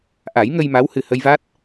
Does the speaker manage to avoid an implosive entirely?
yes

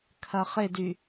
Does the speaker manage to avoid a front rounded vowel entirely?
no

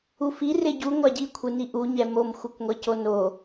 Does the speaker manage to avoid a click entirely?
yes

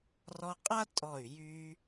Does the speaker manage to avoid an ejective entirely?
no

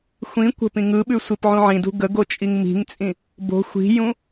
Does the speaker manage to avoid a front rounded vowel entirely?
yes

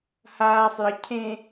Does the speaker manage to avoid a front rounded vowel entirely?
yes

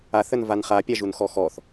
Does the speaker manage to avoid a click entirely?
yes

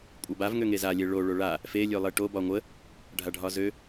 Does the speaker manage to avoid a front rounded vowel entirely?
no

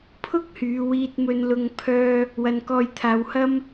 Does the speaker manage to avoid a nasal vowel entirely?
yes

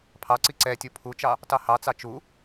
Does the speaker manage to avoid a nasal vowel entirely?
yes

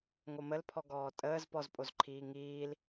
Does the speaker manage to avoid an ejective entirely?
no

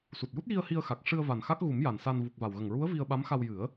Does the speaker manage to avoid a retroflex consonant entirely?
no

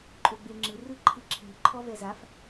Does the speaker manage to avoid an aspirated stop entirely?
no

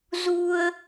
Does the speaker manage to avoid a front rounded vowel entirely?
yes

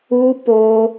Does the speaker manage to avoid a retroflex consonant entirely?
yes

